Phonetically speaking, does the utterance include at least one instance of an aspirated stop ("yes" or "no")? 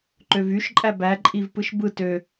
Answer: no